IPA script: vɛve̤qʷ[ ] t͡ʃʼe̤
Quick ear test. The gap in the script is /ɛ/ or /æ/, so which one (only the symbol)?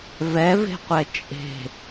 ɛ